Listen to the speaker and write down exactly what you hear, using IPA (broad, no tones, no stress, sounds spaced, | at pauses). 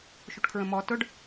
ʃ u ʈ kʰ ɹ ə̃ m ɔ t ʊ ɖ